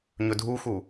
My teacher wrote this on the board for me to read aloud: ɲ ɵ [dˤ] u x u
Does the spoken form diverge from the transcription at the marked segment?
yes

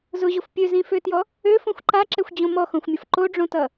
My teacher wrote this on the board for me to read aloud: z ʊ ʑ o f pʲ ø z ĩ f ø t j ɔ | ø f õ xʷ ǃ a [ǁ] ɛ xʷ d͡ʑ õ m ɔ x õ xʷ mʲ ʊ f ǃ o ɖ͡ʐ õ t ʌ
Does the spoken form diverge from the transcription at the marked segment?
no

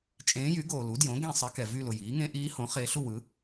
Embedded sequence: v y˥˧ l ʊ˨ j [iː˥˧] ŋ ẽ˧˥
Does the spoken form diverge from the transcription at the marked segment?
yes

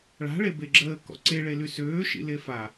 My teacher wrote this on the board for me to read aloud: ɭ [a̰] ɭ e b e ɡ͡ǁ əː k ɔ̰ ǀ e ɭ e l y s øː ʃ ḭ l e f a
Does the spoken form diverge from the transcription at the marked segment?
yes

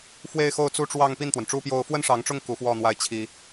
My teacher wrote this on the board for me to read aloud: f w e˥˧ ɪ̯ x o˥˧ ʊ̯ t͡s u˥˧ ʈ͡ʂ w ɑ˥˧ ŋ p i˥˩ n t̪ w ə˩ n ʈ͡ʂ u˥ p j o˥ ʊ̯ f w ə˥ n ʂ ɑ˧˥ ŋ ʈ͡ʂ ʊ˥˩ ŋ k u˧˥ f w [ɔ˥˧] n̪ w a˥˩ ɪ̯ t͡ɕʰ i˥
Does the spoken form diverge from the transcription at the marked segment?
no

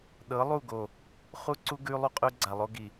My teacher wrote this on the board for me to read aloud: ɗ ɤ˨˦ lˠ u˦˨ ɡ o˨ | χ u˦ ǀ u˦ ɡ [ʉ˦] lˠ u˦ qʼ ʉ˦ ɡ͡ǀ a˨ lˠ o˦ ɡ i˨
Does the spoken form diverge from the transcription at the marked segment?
no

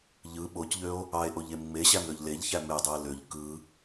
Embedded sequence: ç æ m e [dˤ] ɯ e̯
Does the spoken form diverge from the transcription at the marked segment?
no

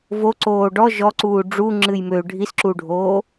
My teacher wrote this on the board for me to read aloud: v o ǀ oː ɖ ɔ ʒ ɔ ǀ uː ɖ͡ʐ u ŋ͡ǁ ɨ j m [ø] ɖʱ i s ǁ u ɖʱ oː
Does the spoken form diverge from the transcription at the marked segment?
no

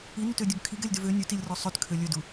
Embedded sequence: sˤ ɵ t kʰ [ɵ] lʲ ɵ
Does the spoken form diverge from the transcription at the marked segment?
yes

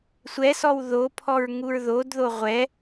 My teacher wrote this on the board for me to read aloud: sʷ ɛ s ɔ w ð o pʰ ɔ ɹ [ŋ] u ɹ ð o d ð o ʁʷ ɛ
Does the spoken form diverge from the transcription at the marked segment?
no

